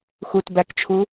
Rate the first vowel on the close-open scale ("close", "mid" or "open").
close